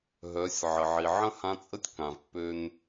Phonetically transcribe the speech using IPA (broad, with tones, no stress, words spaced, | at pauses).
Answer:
ɦœ˩˧sʲ ʕə˩ʕi˩ʕə̃˥ hã˧˥t͡sʼə˥tʲ kã˩vpːø˧n